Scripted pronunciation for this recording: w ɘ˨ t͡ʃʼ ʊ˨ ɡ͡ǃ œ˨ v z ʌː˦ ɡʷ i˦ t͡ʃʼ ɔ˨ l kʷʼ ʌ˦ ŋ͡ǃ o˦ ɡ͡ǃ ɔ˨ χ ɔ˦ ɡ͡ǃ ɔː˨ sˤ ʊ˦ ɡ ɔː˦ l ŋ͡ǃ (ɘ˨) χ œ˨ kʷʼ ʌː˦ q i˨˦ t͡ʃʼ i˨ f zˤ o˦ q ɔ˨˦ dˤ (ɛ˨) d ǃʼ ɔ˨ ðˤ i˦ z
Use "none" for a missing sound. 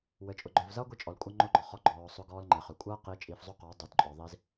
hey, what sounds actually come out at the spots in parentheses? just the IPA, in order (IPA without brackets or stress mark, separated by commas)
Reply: ɘ˨, œ˨